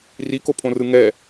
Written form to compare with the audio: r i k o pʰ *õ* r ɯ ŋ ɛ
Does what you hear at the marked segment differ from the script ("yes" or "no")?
no